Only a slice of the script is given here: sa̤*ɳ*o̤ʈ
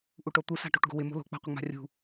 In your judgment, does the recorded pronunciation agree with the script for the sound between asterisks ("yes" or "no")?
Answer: no